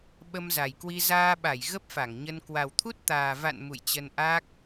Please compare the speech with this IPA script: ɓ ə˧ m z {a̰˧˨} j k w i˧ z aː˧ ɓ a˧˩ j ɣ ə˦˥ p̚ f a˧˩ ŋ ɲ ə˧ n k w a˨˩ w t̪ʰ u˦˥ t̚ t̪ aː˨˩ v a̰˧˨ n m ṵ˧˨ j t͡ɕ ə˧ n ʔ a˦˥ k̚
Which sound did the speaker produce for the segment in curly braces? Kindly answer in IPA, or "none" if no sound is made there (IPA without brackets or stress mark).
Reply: a˨˩